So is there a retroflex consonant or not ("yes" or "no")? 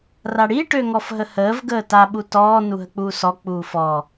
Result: yes